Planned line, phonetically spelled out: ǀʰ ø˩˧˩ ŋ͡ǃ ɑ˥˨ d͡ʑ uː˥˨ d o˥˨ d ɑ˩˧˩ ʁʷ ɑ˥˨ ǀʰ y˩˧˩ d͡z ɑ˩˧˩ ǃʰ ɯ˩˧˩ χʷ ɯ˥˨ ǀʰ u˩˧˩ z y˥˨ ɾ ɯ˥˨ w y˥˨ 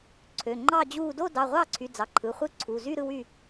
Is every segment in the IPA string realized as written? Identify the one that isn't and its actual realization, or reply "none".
none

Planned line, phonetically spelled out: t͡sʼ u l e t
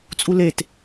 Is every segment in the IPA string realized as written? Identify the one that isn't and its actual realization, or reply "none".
none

